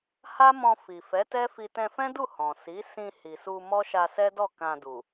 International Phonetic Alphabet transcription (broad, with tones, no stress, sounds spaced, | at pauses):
h a˦ m ɔ̃˧ f i˨ f ɛ˨˦ t ɛ˦ f i˧ t ɛ̃˧ f ɛ̃˦ d u˦˨ h ɔ̃˨ s i˨˦ s ĩ˧ h i˨ s u˧ m ɔ˦ ʃ a˧ s ɛ˦ d ɔ˦˨ k ã˧ d u˨